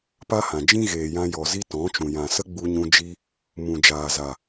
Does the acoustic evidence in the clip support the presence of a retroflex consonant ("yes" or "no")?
no